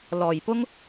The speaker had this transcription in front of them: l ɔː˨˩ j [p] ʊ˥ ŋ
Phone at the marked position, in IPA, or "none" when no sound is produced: p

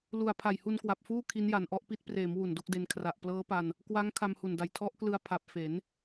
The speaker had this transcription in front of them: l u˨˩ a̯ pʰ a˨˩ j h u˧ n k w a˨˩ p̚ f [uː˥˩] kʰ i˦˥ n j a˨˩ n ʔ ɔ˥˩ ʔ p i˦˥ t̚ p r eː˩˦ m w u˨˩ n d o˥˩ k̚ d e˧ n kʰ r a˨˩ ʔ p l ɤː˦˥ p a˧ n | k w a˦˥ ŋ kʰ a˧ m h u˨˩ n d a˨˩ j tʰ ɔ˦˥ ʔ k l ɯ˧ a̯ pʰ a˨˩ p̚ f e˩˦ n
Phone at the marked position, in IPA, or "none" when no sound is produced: uː˥˩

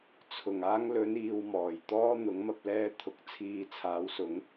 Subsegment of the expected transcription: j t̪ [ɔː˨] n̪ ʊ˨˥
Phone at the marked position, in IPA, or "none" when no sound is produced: ɔː˥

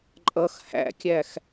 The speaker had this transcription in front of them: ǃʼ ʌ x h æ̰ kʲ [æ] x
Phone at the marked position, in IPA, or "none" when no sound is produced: æ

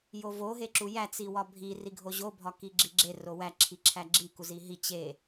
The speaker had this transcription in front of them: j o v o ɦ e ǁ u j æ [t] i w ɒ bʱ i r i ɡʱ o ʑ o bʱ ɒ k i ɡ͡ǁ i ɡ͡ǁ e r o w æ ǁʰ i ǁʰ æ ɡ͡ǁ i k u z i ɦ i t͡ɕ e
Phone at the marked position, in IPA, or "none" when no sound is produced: t͡s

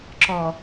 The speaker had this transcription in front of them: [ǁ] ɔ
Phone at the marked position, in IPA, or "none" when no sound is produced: ǁ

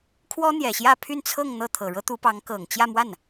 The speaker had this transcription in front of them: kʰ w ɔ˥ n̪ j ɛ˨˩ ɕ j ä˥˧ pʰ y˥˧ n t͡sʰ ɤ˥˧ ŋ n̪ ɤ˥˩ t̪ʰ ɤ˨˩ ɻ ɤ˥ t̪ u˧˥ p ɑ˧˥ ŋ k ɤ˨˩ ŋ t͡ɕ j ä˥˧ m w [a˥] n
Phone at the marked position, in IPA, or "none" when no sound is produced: a˥˩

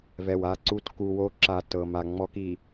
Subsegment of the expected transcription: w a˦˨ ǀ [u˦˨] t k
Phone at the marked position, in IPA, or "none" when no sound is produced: u˦˨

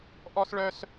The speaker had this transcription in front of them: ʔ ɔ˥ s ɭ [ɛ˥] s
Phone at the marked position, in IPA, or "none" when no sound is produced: œ˥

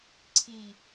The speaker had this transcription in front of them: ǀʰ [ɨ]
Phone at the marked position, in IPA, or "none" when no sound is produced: i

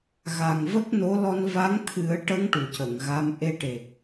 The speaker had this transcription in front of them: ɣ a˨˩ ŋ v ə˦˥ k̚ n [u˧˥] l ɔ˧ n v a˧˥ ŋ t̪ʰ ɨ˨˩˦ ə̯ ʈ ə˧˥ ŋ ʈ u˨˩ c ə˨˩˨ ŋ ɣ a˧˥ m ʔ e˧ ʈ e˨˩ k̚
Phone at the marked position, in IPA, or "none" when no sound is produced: o˧˥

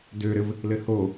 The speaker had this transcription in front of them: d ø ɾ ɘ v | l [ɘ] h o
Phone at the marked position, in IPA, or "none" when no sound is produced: ɘ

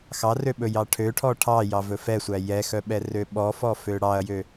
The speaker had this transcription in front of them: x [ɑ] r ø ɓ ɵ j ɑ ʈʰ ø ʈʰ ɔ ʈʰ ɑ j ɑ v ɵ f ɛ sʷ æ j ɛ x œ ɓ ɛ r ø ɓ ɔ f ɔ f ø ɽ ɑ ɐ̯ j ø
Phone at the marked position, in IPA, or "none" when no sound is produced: ɑ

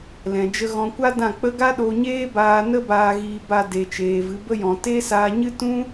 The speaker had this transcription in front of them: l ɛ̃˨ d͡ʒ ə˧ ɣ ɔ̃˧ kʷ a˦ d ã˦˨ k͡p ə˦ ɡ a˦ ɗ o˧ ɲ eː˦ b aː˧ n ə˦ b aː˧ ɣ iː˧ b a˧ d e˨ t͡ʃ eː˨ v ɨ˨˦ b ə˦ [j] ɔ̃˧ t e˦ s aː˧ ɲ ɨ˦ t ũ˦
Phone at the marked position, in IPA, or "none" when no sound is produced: j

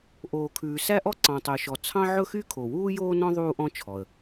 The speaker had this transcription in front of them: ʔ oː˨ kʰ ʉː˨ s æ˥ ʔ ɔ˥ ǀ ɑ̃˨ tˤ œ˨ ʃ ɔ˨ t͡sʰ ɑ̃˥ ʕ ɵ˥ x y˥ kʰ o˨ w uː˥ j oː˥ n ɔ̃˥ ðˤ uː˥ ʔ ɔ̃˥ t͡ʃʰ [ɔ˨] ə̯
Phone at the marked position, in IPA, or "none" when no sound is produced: ɔ˨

